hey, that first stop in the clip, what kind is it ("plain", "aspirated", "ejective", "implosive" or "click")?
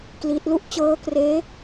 plain